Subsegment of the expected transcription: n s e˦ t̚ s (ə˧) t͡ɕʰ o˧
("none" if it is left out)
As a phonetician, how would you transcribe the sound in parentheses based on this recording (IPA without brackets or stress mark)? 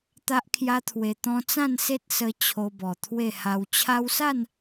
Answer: ə˧